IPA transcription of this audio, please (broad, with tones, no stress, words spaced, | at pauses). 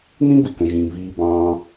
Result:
n̪ĩ˥bɪ˩kə̃˩ʒĩː˩ viː˩bɑ̃ː˩